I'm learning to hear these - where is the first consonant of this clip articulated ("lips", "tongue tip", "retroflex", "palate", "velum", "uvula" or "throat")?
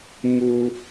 lips